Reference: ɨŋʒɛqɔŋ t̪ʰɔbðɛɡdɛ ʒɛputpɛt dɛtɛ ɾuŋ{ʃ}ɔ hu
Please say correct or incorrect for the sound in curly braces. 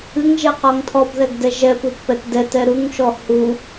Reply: correct